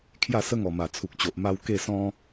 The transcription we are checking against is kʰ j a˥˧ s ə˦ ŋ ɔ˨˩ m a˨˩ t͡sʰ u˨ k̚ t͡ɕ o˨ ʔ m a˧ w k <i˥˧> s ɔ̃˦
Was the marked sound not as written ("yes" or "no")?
yes